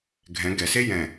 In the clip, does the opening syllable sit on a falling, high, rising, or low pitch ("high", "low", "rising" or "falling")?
rising